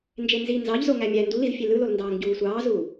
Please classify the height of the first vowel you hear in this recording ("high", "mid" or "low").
mid